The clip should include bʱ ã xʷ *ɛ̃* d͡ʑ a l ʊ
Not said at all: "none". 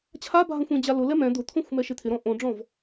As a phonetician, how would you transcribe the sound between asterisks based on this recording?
ẽ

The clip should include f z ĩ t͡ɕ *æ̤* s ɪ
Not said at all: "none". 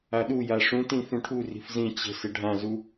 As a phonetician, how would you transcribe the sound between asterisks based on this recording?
ə̤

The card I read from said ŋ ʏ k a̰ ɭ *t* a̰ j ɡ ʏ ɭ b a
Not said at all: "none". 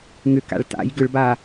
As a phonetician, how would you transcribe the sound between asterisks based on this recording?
t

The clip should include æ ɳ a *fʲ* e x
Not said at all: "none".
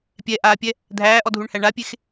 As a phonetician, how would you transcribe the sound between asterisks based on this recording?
pʲ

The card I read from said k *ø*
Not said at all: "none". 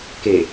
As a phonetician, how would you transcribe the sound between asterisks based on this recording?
e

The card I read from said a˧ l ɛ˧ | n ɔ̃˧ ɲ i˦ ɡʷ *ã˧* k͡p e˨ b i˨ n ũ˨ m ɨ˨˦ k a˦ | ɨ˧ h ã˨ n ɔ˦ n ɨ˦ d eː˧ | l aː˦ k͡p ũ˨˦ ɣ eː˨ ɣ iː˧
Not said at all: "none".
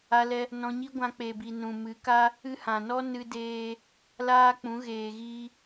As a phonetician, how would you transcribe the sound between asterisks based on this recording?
ã˧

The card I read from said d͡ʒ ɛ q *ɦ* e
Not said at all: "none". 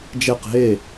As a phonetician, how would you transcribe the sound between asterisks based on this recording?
ɦ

